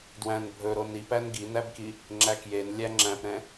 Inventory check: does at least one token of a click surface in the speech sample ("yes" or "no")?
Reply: yes